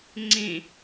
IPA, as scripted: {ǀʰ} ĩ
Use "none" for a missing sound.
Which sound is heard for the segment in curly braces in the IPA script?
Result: ŋ͡ǀ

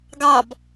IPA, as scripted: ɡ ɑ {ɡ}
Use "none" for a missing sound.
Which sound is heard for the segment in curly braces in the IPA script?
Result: b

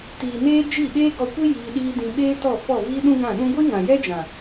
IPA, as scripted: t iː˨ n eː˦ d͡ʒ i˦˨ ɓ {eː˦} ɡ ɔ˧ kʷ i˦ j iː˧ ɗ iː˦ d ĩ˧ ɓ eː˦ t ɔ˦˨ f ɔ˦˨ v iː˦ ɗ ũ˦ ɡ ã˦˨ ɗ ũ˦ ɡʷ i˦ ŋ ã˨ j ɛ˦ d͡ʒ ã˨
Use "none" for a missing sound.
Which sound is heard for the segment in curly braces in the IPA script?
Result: eː˦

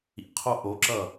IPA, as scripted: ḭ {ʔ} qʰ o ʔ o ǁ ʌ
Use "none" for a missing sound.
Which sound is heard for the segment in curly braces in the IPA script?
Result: none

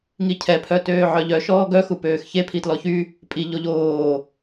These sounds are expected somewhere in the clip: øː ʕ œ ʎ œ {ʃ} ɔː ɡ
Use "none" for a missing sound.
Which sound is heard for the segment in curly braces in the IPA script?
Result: ʃ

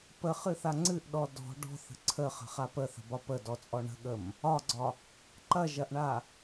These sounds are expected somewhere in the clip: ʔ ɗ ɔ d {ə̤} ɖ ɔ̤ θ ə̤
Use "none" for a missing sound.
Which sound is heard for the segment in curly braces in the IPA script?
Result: ɔ̤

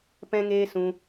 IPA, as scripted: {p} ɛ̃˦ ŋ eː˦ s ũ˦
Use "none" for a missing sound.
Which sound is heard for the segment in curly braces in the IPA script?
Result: p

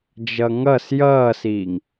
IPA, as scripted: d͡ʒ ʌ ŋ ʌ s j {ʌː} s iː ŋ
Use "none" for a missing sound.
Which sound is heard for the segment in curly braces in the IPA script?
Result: ʌː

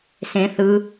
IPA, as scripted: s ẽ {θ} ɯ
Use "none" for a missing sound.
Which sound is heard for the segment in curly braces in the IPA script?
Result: θ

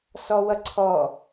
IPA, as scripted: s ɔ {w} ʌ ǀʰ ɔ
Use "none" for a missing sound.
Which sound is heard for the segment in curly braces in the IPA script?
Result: w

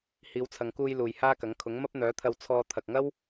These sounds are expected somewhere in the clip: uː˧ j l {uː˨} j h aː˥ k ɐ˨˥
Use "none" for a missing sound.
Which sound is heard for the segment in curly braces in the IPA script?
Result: uː˨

